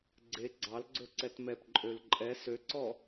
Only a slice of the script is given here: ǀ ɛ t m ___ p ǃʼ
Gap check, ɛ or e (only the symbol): ɛ